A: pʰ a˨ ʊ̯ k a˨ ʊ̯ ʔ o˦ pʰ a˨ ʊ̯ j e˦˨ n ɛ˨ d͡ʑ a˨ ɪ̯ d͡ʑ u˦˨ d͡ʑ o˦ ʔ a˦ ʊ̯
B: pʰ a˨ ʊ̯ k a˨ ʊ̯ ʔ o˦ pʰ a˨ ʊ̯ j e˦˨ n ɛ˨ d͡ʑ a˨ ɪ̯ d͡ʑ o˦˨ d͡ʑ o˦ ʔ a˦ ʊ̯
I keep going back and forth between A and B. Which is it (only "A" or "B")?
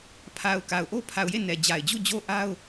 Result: A